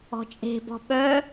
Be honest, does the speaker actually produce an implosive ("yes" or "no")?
yes